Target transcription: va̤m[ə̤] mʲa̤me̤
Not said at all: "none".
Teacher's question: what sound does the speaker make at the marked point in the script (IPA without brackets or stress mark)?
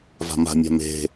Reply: a̤